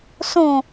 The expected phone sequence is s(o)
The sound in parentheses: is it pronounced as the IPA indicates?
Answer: no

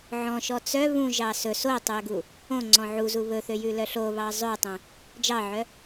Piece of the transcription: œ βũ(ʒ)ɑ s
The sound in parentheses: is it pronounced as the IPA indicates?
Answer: yes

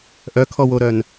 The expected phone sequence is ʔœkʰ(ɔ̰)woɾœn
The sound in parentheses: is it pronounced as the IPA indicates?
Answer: no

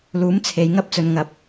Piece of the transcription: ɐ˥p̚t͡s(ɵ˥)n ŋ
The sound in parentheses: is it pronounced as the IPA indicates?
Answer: no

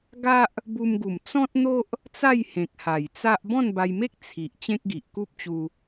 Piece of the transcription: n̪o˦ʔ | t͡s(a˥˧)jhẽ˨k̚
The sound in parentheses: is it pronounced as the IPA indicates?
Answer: yes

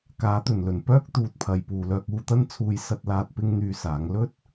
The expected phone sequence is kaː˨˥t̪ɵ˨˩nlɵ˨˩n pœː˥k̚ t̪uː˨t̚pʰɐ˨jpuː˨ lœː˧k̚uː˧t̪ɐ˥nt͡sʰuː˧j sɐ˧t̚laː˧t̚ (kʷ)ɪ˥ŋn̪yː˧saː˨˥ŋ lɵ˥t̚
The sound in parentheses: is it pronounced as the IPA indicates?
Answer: no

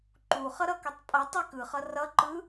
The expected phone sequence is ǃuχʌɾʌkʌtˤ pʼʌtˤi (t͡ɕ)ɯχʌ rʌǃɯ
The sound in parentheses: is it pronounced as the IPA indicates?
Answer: no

